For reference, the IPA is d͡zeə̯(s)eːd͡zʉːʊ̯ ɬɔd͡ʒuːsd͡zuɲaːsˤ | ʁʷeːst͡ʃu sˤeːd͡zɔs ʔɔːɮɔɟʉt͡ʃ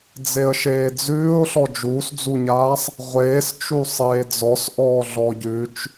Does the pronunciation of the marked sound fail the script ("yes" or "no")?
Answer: yes